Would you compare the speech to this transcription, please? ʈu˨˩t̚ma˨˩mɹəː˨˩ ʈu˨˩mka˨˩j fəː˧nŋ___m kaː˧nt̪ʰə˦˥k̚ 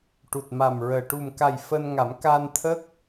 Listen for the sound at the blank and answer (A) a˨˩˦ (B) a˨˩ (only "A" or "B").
A